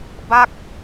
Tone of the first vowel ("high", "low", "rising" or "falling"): falling